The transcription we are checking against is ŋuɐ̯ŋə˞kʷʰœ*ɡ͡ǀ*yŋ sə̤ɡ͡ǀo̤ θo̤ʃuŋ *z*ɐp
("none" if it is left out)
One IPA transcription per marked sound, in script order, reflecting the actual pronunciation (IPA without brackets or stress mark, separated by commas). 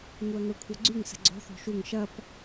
ɡ͡ǀ, ʃ